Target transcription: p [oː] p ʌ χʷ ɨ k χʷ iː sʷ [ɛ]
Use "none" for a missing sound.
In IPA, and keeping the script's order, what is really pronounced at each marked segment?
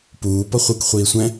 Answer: uː, ɛ̃

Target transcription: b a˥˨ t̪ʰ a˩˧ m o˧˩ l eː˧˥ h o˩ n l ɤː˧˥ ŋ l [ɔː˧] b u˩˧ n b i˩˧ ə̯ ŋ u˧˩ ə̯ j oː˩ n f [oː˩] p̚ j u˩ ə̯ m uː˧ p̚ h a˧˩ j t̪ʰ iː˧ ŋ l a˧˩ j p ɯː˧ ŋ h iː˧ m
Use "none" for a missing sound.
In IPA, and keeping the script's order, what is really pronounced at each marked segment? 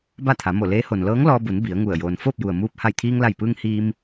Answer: ɔː˧, oː˥˨

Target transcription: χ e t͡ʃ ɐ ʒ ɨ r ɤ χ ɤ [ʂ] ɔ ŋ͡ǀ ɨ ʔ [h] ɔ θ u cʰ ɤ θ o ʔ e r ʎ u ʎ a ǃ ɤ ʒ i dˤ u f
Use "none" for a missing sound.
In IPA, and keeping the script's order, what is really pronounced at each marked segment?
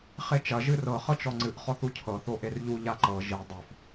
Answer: t͡ʃ, χ

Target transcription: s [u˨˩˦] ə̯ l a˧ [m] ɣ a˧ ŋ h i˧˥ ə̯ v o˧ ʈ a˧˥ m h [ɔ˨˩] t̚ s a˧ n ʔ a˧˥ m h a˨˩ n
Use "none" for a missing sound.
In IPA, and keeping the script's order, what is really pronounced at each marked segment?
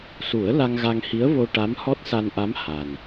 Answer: u˨˩˦, ŋ, ɔ˦˥

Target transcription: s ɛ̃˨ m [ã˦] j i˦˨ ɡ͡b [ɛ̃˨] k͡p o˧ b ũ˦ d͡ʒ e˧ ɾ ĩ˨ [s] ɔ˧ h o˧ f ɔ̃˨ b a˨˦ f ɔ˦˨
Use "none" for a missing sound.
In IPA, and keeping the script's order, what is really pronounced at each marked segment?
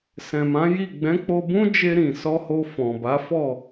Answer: ã˨˦, ɛ̃˨˦, s

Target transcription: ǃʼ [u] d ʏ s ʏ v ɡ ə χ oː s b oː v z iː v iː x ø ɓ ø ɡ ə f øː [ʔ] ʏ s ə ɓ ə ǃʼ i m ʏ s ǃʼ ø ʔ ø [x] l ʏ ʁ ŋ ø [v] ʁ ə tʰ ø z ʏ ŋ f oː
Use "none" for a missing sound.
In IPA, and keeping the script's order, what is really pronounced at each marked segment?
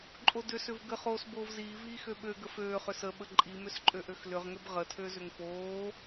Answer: o, χ, x, b

